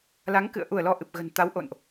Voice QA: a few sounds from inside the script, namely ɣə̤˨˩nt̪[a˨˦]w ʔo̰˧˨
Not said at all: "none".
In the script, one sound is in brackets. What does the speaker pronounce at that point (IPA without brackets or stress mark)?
a˨˦